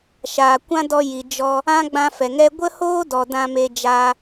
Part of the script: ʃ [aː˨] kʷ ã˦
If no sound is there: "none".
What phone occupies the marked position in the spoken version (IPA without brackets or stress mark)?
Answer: aː˨